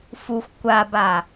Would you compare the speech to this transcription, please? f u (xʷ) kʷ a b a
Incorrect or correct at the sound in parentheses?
correct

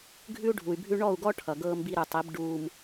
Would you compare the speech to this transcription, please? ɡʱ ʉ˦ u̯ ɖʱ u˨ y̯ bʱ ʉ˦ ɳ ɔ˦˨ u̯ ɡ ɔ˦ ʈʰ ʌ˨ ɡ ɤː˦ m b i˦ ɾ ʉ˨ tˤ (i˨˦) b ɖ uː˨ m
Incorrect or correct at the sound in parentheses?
correct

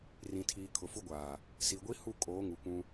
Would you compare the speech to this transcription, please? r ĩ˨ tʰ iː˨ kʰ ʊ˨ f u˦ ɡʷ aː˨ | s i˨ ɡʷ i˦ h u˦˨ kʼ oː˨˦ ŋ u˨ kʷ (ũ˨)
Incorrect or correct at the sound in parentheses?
incorrect: ũ˦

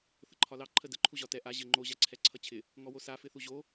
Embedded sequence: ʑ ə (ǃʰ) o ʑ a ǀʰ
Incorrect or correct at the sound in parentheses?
incorrect: ŋ͡ǃ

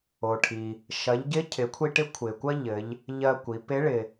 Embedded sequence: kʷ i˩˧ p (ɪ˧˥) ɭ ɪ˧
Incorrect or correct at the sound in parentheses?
correct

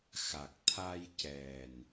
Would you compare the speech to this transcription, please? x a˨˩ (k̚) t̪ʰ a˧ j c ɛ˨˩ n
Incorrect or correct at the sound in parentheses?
correct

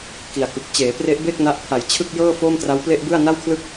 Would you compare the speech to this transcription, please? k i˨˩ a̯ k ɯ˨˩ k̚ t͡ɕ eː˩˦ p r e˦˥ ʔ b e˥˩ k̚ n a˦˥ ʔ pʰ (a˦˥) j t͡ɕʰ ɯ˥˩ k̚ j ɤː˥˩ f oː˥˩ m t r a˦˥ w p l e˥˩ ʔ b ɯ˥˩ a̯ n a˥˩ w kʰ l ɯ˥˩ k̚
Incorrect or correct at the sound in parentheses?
incorrect: a˨˩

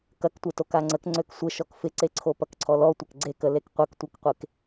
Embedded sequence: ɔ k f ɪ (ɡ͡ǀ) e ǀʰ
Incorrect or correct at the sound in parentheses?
incorrect: ǀ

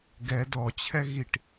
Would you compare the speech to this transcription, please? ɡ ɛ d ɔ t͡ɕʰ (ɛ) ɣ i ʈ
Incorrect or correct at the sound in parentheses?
correct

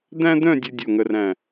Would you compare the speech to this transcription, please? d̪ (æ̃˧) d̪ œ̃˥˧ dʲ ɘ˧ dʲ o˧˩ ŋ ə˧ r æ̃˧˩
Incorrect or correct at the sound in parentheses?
incorrect: æ̃˥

